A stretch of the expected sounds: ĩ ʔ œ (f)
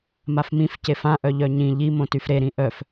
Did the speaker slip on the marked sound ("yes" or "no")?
no